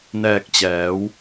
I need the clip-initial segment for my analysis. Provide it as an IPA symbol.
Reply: n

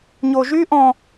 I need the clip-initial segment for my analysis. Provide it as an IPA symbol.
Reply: ɲ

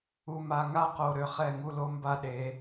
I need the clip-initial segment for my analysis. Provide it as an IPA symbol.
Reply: u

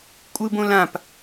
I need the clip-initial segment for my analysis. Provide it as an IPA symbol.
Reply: kʷʼ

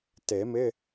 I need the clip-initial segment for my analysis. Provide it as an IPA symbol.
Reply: t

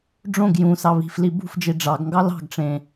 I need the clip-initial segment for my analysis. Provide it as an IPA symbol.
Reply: ɖ͡ʐ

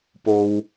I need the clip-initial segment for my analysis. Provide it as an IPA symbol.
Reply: p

